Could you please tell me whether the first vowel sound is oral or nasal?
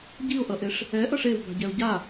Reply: oral